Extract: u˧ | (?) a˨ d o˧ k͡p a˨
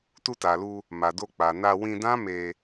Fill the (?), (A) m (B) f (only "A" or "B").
A